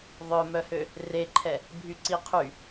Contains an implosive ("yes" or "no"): no